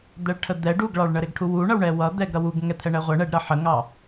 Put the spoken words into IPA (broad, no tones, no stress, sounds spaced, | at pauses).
d̪ ɛ ɭ ʈʰ ə d̪ ɛ ɖ u ɡ ɭ ɑ ɭ ɳ ə ɾ ɪ ɡ ʈʰ u w u ɳ ʌ w ɳ ɛ w ʌ d̪ ɛ ɡ ɾ ʌ w u ɡ ŋ ɛ t̪ʰ ɛ ɳ ɛ ʁʷ ɛ ɳ ɛ ɖ ɾ ʌ ħ ə ŋ ɑ